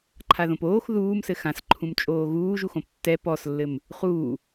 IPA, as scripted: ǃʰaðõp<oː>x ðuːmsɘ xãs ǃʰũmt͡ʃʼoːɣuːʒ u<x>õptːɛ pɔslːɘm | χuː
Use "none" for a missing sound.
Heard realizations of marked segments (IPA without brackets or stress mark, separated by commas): oː, x